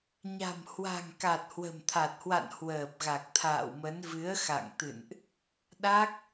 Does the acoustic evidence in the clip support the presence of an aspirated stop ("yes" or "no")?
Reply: yes